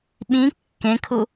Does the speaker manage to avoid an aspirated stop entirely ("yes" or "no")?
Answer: no